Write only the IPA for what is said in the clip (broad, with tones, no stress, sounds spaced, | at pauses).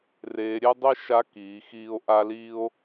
r eː˩˧ ɾʲ e˥ dˤ i˥ ʃ a˧˥ k iː˩˧ x iː˧ o̯ ʔ a˥ l iː˥ o̯